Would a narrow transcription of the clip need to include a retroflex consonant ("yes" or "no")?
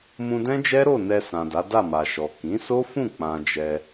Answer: no